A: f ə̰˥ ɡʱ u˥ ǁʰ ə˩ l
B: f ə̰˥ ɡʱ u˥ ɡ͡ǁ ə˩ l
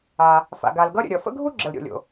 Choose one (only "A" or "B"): B